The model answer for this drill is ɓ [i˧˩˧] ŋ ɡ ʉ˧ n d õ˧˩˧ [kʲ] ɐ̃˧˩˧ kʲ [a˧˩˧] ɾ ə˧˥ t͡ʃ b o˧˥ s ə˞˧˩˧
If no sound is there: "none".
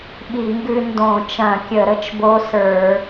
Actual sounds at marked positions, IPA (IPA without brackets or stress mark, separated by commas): i˧˩˧, t͡ʃ, ə˧˩˧